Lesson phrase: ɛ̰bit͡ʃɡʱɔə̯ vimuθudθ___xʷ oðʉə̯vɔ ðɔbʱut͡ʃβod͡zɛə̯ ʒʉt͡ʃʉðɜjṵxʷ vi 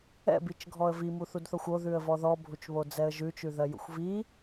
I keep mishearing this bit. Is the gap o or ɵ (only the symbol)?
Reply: o